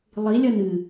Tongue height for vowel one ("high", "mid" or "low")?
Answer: high